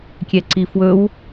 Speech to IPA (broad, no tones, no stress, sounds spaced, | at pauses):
kʲ ɛ ǀ i f w ɵ w